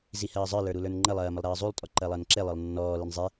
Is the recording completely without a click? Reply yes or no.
no